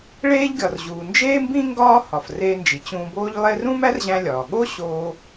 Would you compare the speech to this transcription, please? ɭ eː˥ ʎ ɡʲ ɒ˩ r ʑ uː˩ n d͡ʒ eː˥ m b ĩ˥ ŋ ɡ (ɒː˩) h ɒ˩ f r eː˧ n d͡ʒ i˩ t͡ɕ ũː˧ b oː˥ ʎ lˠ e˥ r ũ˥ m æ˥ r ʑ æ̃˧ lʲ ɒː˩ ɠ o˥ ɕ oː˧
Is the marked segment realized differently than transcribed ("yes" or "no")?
yes